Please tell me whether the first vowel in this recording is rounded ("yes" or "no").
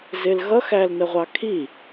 no